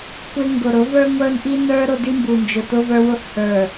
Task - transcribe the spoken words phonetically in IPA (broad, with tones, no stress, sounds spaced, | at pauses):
kʷ ɪ˦ ŋ ɡ ʊ˨ ɾ ʊ˨˦ v ə˞˦ ŋʷ ə˞˦ n ʔ i˦ n ə˞˦ ɾ ʊ˦ d i˦ m b u˨ n d͡ʒ ʊ˨ t ʊ˦ v ə˞˦ w ʊ˦ ʔ h ə˞˨